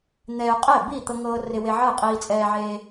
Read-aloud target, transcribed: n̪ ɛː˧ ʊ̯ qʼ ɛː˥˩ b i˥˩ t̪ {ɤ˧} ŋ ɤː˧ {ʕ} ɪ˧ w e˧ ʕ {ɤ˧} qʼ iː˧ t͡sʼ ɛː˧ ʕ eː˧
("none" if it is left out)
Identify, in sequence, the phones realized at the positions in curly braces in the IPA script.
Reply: ɤ˧, r, ɤ˥˩

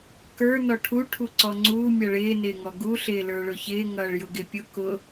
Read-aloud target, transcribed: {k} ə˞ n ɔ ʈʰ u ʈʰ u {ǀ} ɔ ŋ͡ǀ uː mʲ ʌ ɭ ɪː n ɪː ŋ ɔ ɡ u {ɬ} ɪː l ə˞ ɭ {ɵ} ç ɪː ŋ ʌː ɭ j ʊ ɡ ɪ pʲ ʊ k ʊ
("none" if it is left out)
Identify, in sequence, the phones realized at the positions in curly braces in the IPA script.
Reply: k, ǀ, ɬ, ʊ

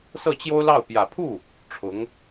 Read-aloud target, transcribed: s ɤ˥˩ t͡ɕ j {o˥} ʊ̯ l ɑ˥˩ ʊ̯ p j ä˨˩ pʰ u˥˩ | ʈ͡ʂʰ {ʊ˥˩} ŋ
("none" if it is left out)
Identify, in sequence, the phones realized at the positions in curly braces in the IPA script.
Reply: o˥, ʊ˧˥

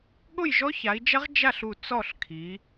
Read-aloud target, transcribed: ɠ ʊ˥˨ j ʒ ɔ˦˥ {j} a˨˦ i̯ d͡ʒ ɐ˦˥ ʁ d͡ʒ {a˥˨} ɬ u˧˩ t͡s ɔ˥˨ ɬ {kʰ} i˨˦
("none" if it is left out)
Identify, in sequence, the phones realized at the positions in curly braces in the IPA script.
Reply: ç, a˥˨, kʰ

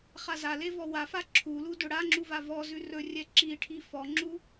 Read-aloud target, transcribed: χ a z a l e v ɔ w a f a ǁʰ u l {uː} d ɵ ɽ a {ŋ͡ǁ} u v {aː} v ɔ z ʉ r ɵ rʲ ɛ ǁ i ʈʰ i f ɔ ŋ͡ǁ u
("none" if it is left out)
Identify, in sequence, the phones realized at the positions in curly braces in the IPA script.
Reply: u, ŋ͡ǁ, a

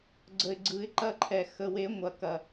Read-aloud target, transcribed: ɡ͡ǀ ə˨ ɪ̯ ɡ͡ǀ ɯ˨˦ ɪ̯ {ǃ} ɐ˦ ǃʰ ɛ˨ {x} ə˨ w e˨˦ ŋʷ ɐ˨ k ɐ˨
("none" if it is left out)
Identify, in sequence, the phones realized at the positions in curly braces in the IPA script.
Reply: ǃ, x

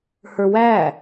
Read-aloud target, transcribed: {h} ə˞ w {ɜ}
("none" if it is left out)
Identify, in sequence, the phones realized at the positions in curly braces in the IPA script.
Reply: h, æ

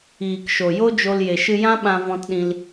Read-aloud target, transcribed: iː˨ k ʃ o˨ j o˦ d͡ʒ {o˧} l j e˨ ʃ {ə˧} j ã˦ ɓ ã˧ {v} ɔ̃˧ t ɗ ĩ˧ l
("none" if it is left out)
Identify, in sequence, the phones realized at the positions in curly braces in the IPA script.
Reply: o˧, ɨ˧, v

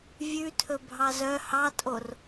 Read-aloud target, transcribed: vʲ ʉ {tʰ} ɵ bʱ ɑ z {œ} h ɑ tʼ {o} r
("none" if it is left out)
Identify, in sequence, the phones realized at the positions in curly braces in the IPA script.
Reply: tʰ, œ, o

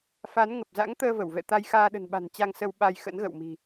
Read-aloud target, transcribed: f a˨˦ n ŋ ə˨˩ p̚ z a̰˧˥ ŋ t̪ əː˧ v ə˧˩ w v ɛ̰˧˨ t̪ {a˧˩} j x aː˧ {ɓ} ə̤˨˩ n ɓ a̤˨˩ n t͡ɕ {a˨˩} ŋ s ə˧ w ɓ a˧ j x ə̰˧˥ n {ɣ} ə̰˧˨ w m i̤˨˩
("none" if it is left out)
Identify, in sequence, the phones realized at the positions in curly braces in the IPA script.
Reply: a˧, ɗ, a˧, ɣ

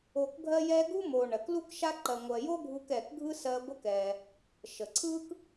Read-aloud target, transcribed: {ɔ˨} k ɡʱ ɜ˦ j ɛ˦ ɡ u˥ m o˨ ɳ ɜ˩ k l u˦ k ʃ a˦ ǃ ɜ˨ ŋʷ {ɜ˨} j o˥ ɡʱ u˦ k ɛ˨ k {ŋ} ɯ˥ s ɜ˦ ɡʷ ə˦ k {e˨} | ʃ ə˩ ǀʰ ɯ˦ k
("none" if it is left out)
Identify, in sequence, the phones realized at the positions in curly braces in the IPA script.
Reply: o˨, ɜ˨, ɡʱ, ɛ˨

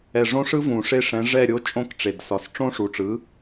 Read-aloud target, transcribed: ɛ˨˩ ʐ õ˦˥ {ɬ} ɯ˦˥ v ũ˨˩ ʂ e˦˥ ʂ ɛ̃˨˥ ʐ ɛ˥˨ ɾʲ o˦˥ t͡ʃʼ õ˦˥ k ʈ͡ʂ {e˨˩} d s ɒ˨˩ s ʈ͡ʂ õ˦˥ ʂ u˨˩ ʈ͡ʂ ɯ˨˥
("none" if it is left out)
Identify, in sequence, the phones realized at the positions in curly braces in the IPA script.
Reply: ʂ, e˨˩

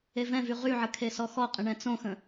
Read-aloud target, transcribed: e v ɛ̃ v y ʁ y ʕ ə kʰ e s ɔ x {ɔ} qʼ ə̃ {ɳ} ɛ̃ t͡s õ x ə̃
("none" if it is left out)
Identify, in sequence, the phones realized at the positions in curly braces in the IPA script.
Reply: ɔ, ɳ

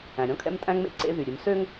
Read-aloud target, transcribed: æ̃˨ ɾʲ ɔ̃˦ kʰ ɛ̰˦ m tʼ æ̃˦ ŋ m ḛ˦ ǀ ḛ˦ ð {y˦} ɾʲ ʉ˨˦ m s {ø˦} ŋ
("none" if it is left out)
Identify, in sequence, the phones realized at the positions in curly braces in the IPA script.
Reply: y˨, ø˦

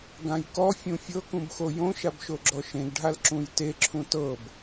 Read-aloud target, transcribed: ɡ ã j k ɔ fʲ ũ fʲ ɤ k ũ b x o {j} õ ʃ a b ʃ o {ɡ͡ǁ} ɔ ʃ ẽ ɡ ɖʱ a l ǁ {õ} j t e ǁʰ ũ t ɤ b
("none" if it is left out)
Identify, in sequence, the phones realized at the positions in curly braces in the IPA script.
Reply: j, ɡ͡ǁ, ũ

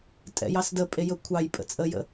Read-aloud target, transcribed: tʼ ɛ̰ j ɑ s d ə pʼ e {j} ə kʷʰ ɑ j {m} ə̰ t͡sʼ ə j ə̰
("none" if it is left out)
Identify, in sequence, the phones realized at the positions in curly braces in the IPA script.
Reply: j, pʼ

